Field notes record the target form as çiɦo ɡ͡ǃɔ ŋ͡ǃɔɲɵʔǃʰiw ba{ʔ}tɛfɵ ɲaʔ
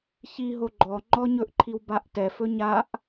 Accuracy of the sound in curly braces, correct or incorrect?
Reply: correct